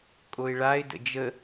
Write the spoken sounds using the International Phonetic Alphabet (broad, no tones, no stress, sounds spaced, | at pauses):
kʼ o ɪ̯ ɭ a ɪ̯ d ə̰ d͡ʒ ə